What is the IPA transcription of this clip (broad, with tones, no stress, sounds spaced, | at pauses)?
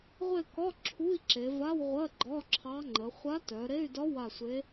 ʁʷ e˦˨ k ɒ˧˥˧ ǁʰ u˧˥˧ i̯ ǁ e˩˧ v a˧˥˧ w ʁʷ ɜ˧˥˧ ɡ͡ǃ ɒ˧˥˧ ǁʰ ɑ˧˥ ŋ͡ǃ ə˩˧ χʷ a˧˥ t œ˩˧ ɾ e˧˥˧ y̯ d ɒ˧˥ w a˦˨ sʷ e˧˥